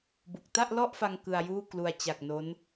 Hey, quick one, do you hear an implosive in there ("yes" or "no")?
no